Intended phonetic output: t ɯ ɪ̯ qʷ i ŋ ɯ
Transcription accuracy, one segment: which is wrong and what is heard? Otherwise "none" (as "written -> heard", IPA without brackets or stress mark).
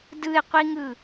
t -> d